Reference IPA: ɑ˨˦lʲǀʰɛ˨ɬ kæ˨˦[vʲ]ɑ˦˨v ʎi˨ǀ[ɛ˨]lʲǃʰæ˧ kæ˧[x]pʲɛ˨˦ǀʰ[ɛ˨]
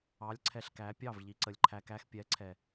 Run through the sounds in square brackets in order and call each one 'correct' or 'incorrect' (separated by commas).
incorrect, incorrect, correct, correct